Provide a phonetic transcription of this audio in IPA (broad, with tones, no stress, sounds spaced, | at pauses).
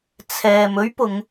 t͡sʰ ɛː˨ m ɵ˥ ɥ p ʊ˨˧ ŋ